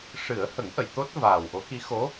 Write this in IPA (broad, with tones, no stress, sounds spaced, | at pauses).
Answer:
ʂ ɨ˨˩˦ ə̯ h ə˨˩˦ ŋ ʔ ə˨˩˨ j t̪ o˦˥ t̚ v aː˨˩ w ʔ o˧˥ k i˧˥ x o˧˥